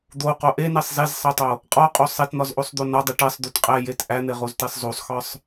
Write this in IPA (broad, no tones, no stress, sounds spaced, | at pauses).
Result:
d̪ o q o ʔ e n e sˤ z e z sˤ e tˤ o | qʼ ɒ qʼ o sˤ e t n̪ ɒ z ʔ o sˤ d̪ o n ɒ dˤ i ʈ e sˤ d̪ u t qʼ æ j e t ʔ æ n̪ e ʁ o z t e sˤ z o sˤ x ɒ sˤ